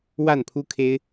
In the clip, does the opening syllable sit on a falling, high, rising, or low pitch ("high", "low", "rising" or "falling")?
falling